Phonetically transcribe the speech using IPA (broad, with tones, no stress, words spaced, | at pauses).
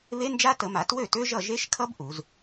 βe˦˥nd͡ʒa˦˥tə˨˩˦ma˨˩˦ twø˥˩tø˦˥ʒʌ˥˩ ʒe˦˥ʃkʰʌ˦˥b ʔu˨˩˦z